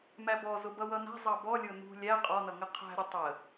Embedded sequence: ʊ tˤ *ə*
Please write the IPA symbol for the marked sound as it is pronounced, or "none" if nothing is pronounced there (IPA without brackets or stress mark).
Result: ə